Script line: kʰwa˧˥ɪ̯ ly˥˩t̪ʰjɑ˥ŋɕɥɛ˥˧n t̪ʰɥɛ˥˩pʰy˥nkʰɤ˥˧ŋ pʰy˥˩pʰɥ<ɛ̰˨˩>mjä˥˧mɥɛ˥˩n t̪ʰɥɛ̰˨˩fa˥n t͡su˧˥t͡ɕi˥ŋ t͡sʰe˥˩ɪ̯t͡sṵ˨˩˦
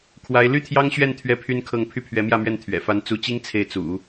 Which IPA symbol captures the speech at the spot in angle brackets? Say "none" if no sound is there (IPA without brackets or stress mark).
ɛ˧˥